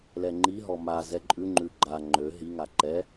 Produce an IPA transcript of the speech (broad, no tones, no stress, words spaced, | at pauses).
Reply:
lɛŋ͡ǃiɦɔ ma zɛǃʼʉŋ͡ǃʉ ɡ͡ǃa ŋ͡ǃø ɦiŋa ǃɛ